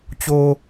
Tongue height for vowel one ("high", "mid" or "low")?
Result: mid